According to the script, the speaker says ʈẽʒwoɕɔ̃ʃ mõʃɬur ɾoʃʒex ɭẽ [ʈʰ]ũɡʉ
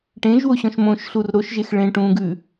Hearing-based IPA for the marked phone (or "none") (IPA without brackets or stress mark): ʈ